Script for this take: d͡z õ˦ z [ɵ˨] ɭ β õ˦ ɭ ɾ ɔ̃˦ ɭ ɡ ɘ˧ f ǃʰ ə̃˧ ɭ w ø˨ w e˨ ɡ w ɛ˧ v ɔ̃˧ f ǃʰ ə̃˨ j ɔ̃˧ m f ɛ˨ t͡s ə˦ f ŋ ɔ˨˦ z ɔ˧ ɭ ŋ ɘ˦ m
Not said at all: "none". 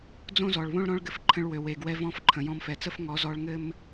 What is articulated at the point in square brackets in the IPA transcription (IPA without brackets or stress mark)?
ɔ˨